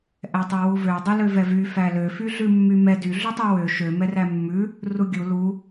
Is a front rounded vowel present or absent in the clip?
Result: present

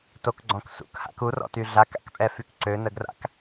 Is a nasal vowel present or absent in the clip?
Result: present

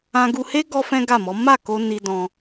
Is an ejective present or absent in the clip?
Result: absent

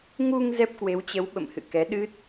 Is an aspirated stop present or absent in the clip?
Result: absent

